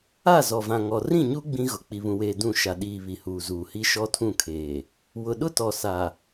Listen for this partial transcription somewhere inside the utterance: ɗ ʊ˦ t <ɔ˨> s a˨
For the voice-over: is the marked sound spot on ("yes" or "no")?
yes